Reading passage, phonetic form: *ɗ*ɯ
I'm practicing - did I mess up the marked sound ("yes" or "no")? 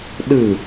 no